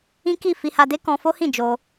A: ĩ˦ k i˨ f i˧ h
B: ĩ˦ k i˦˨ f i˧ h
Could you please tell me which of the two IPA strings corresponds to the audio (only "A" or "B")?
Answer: B